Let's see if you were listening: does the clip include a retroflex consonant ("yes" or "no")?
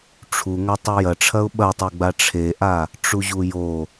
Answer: yes